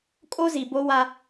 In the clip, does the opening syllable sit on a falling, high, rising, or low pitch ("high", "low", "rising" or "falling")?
high